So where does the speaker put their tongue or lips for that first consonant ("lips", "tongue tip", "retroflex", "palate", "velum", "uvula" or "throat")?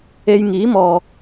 palate